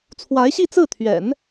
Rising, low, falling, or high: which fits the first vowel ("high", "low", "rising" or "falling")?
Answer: rising